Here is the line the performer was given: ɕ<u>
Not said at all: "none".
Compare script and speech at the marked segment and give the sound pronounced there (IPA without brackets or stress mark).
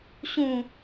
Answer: ũ